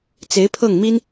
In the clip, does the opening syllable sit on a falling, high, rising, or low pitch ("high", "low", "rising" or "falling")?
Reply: rising